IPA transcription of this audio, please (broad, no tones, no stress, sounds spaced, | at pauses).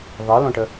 ðˤ i l õ ʈ ə